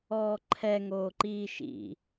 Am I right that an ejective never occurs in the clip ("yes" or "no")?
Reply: yes